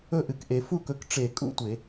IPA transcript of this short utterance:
ɵ˥˩ ʔ ɨ˩ k ʔ e˩ f u˥˧ k ɵ˨˦ k ʈ͡ʂ e˧˩˧ kʼ ṵ˥˧ tʷ e˧˩˧

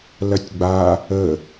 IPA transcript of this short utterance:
l ɐ tʲ ɡ͡b a | ə

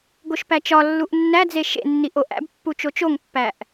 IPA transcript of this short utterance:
ɡ o ʃ p æ t͡ʃ ɒ lː u ʔ nː æ d͡z e ʃ ḛ nː i ʔ o ʔ æ̰ b pː u t͡ʃ o t͡ʃ o ŋ pː æ ʔ

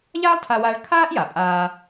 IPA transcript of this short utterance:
ʎ aː˥ lˠ tʰ a˧ w aː˧ ɭ kʰ aː˥ ʔ j a˩ pʼ aː˧

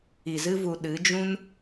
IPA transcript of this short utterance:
i˧ z ɨ˦ v u˧ ɗ ɨ˨˦ d͡ʒ ũ˦ n

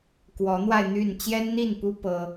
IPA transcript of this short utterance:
k w ɔ˨˦ n̪ w a˧ ɪ̯ n̪ y˥˨ n t͡ɕ j ɛ˦ n n̪ i˥˨ n p u˦ p ɤ˦

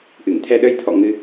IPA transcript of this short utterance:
ʔ ɨ˧˩ ŋ t̪ʰ ɛ˧ ɗ ə˧ j t̪ʰ ɔ̰˧˨ ŋ ɨ˧

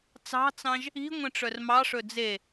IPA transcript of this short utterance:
t͡s ɑ̤ t͡s ɑ̃ ʒ | i̤ ŋʷ ẽ ʈ͡ʂ œ r m ɑ ʂ ɵ d͡z e

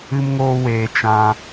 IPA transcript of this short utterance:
ɨ˦ m ŋ oː˦ w eː˧ t͡ʃ ã˧

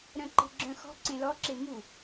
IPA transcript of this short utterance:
ɾ œ̃ ǃ e̤ ɡ͡ǁ œ̃ x ɔ̤ ǀ ẽ l ɔ ǁ e m u

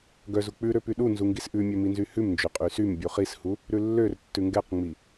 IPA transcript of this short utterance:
ɡ œ z u k͡p ʉ ɾ ø p y ɗ u n z u ŋ ɡ i s ʔ ʉ mʲ ø m i n z y h ʉ m n d͡ʒ ø qʼ y s y m bʲ u χ i s h u | ɾ ʉ lː ø r tː ʉ ŋ ɡ ɛ q ŋ͡m i

